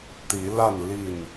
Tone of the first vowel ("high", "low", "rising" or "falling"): rising